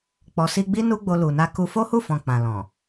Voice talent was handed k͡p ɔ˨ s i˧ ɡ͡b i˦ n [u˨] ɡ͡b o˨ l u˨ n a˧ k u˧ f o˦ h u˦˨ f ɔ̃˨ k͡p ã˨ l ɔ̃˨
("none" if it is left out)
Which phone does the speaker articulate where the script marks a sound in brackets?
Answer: u˧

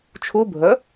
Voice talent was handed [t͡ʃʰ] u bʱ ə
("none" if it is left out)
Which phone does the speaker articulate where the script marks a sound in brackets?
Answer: t͡ʃʰ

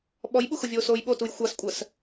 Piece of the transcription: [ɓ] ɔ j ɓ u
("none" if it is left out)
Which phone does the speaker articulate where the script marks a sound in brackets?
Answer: ɓ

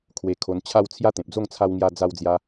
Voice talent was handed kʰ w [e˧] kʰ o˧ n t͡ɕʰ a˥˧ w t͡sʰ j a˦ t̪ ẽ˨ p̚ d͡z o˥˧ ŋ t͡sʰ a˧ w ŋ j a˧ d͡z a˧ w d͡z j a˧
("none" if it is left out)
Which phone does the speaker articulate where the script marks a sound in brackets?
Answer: e˧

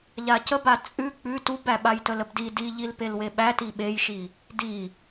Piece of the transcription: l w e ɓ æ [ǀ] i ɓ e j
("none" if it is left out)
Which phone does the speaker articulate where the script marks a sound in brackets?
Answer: t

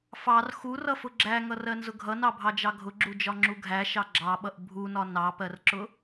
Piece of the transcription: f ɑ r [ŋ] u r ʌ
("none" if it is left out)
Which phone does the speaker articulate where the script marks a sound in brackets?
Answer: x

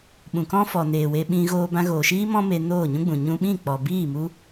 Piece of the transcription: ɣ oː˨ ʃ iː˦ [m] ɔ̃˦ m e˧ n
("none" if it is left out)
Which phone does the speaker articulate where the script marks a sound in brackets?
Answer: m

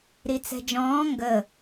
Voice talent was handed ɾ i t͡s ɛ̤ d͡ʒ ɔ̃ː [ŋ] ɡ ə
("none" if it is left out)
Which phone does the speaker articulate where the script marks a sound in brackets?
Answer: ŋ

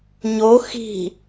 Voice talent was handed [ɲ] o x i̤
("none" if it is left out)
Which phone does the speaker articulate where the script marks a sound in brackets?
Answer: ɲ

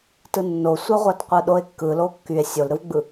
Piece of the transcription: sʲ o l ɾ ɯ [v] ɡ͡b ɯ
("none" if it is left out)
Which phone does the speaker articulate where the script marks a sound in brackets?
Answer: v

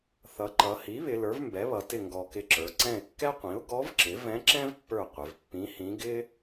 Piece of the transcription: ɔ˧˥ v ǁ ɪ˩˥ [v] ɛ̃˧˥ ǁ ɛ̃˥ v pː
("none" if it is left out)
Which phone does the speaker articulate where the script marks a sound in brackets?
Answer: v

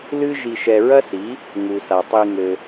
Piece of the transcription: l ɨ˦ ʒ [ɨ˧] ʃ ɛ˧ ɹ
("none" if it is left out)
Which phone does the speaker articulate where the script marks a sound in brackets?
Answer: i˧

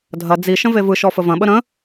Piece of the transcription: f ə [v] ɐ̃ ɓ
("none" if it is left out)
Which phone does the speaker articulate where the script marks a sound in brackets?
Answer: v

